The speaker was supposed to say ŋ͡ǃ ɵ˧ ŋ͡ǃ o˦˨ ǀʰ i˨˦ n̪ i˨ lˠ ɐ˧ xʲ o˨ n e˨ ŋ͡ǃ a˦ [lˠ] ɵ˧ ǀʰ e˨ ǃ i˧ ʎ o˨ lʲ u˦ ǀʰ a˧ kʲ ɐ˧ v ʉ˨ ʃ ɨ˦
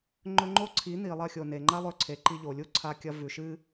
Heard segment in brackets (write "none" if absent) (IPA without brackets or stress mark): lˠ